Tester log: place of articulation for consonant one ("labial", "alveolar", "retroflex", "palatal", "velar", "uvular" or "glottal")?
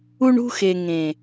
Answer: retroflex